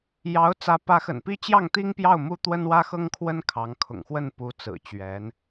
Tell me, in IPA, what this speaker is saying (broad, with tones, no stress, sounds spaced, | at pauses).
j ɑ˧˥ ʊ̯ t͡s ä˧˥ p ä˧˥ x ə̰˨˩ n p i˥ t͡ɕ j ɑ˥˩ ŋ t̪ i˥ ŋ p j ɑ˥˩ ʊ̯ m u˥ t̪ w ə˥ n w ä˥ x ɤ˥ ŋ kʰ w ə˥ n kʰ ɑ˧˥ ŋ kʰ ʊ̰˨˩ ŋ x w ə˥˩ n p u˧˥ t͡s ɹ̩˨˩ t͡ɕ ɥ ɛ˧˥ n